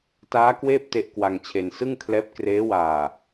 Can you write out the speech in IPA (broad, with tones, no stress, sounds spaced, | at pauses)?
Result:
t aː˦˥ k w eː˥˩ p̚ t e˥˩ ʔ k w a˧ ŋ t͡ɕʰ e˧ n s ɯ˥˩ ŋ kʰ l ɛː˦˥ p̚ k r eː˦˥ w aː˨˩